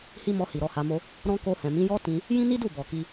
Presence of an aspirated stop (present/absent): absent